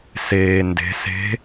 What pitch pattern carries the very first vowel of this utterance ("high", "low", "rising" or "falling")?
low